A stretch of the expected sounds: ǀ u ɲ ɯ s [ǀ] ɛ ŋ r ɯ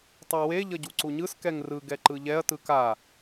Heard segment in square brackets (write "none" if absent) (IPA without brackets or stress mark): k